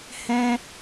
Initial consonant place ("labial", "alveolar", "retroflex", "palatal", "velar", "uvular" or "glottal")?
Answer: glottal